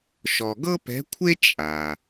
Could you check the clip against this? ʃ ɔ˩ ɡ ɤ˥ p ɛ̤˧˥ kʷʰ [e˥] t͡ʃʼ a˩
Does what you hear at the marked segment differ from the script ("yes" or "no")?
no